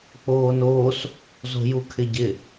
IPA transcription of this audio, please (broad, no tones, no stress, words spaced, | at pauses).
k͡poːnoːs | zo̤jukʰɪɟɪ